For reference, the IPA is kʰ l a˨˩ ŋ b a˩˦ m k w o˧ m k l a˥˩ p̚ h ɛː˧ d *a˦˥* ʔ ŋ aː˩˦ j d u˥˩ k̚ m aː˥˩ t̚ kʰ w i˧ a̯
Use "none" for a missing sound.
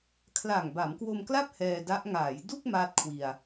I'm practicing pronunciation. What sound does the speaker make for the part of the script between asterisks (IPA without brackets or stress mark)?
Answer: a˦˥